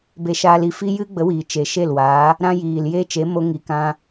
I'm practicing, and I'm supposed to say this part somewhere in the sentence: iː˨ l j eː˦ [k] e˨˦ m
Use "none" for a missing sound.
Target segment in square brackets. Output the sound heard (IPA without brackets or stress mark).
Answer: t͡ʃ